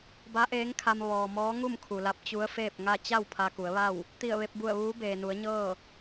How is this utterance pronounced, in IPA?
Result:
ba˧˥ʔeː˧˥ŋkʰa˧m ʋɔː˩mɔː˧˥ ŋu˥˨mkʰu˩la˧˥p̚ t͡ɕu˧˥ə̯feː˥˨p̚ŋa˥˨ t͡ɕa˥˨w pʰa˧ku˩˧ə̯ʋa˥˨w | t̪i˧˩ə̯ʋe˧p̚bu˧˩ə̯ ʋuː˧˥beː˩nu˩˧ə̯ɲɤː˥˨

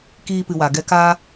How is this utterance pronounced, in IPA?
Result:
kiː˧pɨ˨wa˨ɡɛ˧ ka˧

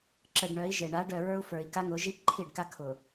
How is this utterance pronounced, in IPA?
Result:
ǁə˨ɖ ɳœ˨˦i̯ʒe˨ ɳa˨˦ɖœ˨ɹə˞˦u̯ fə˞˨i̯ka˦ŋʊ˨˦ʒi˦ ǃʰi˦˨ɖka˦ kʰʊ˨

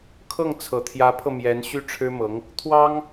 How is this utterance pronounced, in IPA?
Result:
kʰɤ˥˩ŋt͡sʰɤ˨˩t̪ʰjä˧˥pʰɤ˧ mjɛ˧˥nɕy˥ʈ͡ʂʰɻ̩˥mɤ˧˥ŋ | t̪ʰwɑ˥ŋ

